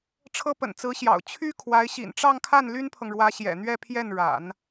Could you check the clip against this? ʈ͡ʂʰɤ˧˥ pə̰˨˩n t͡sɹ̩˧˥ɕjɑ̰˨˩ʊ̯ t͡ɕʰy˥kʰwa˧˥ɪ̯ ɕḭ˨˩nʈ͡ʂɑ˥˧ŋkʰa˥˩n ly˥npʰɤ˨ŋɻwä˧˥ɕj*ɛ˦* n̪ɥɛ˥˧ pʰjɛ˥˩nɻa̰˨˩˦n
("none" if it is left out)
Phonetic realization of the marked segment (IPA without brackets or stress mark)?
ɛ̰˨˩